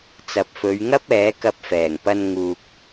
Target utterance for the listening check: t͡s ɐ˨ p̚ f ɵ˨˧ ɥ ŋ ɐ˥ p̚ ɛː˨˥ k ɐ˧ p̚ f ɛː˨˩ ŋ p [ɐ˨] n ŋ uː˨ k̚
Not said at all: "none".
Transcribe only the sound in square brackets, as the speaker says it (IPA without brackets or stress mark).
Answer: ɐ˧